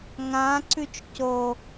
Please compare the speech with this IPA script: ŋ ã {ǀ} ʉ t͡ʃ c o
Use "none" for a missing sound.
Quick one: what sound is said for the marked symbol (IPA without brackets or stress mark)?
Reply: ǀ